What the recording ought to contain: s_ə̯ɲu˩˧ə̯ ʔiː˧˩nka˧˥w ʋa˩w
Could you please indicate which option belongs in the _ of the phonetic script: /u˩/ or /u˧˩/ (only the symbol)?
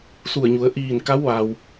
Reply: u˧˩